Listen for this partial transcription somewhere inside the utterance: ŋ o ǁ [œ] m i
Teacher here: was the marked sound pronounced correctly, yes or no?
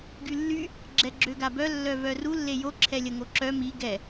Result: yes